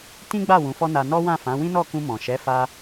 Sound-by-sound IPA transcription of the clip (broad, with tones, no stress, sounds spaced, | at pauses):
t ĩ˦ ɡ͡b a˦˨ w ũ˨˦ f ɔ˦ n a˧ n ɔ˦ w ã˦˨ f ã˨˦ w ĩ˦ n ɔ˦˨ k ũ˧ m ɔ̃˨ ʃ ɛ˨˦ f a˧